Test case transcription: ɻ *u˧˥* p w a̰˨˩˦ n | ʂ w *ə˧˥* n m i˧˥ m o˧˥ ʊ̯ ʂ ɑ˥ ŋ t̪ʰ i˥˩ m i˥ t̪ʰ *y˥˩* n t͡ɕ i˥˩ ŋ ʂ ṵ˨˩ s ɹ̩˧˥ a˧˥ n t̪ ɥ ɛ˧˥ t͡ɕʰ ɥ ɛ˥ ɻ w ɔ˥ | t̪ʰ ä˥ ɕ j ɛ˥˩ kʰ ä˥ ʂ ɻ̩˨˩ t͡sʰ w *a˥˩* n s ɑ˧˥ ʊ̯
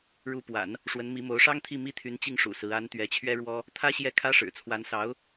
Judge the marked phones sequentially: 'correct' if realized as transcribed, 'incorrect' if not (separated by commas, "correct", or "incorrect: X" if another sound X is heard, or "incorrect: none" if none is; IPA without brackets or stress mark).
correct, correct, incorrect: y˧˥, incorrect: a˧˥